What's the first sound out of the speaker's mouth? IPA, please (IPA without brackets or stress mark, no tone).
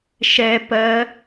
ʃ